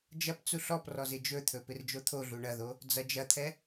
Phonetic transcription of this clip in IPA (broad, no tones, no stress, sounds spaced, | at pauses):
d͡ʒ ɐ p t͡s u ɬ ɔ p r ɔ z ɪ d͡ʒ ɵ t̪ʰ ɵ p ɪ r d͡ʒ o t̪ʰ o ɮ u ɳ ɐ ð o | d͡z ɐ d͡ʒ ɐ t̪ʰ ɛ